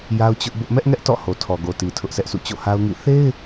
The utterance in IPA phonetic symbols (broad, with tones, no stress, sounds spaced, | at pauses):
j a˦ ʊ̯ t͡ɕ ʊ˦ ʔ b ʊ˦ ʔ m ɛ˦ ʔ ŋ ɛ˦ ʔ t ɔ̰˦˨ h o˨ tʰ ɔ˨ ɡ o˨ t i˨ tʰ ʊ˦ ʔ sʰ ɛ˦ ʔ sʰ ṵ˦˨ t͡ɕ o̰˦˨ h a˦ ʊ̯ ŋ ḭ˦˨ θ e˦ ɪ̯